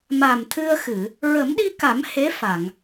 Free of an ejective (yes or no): yes